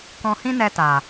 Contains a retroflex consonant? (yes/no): no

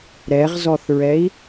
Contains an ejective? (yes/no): no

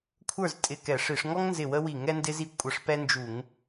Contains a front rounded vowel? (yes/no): no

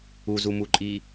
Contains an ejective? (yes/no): yes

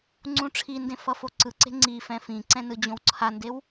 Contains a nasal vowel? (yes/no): yes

